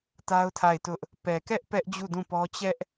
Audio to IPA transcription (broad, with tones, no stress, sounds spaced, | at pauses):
t a˦ ʊ̯ tʰ a˦˨ ɪ̯ t ʊ˦ ʔ | p ɛ˨ k ɛ˦ ʔ p ɛ˦ ʔ d͡ʑ u˦˨ d ũ˦˨ p ɔ˦ t͡ɕ ɛ˦ ʔ